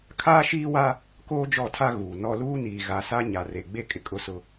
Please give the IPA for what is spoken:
kʰaː˦ʃiː˦wa˦ | koː˦d͡ʒɔ˦˨tʰa˦ ɣuː˨nɔ˦ luː˦niː˨ ɣa˨sa˦ ɲa˨ re˨ɡ͡be˦ kʼɪ˨kʼʊ˦sʊ˦

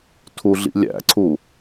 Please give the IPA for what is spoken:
tʰuɮḭlʲæ̰ǀʰu

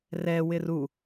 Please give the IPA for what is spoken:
rɛwɪr u

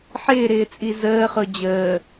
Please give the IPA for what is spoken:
ħɪːɾɪːt͡sʼi zəːχʊ d͡ʑəː

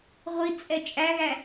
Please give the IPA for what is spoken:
ʁʷit͡sʼɛ t͡ʃʼæɣæ

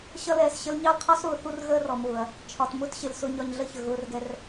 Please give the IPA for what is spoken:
ɕʌ˦lɛː˨sɕə˦l ɲɑ˦lqʰɔ˦sɾʊː˨ θu˦rɣəː˦rɔ˨mʊː˨ɐ̯ | t͡ʃʰɒ˨tmʊ˦tɕɪ˨l sʊ˦ɲɒ˦ɲ ɮə˦çə˨ɣʊː˦rɡɛ˦r

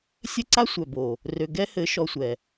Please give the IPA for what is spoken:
sʲɘ˦ǀa˦ sʷœ˨bo˨ | rø˨ ɡɛ˦hɘ˨˦ ʃɔ˦sʷɛ˨

